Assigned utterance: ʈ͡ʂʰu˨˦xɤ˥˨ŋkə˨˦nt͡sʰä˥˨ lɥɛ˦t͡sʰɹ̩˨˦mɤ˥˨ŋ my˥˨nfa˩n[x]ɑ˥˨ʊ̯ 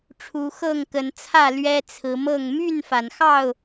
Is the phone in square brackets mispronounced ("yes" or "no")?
no